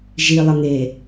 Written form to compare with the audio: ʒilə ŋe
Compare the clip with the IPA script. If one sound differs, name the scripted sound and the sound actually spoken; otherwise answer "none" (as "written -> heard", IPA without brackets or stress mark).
l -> lˠ